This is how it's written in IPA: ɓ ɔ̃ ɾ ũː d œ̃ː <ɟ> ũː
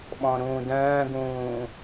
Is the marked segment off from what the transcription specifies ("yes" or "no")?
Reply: yes